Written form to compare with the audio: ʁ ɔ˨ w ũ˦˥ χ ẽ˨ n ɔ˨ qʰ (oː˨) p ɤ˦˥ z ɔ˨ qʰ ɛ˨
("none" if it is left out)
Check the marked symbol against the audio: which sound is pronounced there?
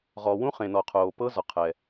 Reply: oː˨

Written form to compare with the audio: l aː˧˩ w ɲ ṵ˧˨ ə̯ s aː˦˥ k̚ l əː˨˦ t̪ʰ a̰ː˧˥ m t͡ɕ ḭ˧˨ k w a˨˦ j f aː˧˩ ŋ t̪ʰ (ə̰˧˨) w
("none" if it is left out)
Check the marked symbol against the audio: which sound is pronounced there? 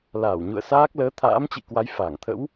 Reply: ə̰˧˥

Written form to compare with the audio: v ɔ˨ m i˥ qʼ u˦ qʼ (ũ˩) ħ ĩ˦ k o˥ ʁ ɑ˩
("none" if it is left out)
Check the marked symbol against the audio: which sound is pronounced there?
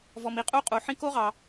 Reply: u˩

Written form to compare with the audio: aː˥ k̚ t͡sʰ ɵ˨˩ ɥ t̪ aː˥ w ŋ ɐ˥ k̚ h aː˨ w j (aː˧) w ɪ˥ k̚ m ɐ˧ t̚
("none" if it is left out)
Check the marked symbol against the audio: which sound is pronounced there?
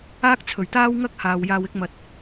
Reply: aː˧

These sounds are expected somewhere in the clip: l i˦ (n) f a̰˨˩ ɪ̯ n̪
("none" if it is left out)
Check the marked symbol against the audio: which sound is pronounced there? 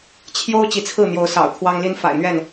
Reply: n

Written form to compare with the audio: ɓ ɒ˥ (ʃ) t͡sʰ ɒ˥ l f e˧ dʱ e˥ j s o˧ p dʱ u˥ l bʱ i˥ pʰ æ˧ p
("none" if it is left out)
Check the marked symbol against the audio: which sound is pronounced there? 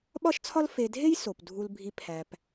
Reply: ʃ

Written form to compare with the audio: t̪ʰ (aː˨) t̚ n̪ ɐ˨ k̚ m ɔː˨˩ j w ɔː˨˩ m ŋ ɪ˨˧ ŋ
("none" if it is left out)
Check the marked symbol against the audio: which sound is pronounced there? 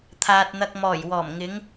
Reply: aː˨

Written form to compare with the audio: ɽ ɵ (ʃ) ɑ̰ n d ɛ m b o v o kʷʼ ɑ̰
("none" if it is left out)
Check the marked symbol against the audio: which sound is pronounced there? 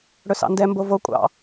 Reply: s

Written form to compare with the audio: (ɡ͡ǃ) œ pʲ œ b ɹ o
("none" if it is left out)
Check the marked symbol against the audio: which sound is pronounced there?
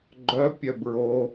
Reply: ɡ͡ǃ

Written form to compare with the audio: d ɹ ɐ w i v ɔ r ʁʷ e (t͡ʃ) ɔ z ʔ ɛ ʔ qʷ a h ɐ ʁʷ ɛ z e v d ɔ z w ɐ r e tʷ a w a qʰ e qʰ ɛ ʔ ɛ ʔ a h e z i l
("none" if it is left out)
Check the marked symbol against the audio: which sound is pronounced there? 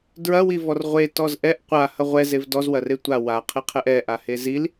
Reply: t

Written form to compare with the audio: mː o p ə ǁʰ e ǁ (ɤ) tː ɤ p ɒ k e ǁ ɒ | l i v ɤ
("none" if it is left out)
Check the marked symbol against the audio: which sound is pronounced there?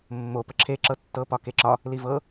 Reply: ɤ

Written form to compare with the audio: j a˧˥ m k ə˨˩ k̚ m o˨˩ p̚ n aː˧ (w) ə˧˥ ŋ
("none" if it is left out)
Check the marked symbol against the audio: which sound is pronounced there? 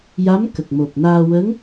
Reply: w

